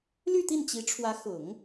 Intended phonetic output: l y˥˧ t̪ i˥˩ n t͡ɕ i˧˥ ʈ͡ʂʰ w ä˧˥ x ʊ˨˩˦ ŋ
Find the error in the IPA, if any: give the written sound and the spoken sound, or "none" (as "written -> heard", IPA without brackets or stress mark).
none